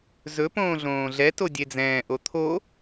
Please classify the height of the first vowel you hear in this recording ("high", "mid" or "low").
mid